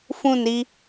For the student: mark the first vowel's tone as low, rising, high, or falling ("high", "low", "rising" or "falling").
falling